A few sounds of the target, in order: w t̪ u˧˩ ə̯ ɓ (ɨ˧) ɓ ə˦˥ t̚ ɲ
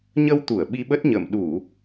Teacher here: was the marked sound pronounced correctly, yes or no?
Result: no